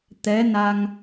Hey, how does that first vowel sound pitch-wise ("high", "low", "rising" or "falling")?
rising